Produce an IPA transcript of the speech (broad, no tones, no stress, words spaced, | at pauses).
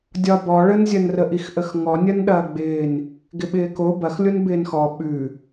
dʲɒbɔ ɭənzʲɐn rəʔixʔəxŋɔ nʲɐnɗɐːɡ͡bɪːn | ɡɪɓɪːko bɐxlʲon bɪːnxɔ ɓʉ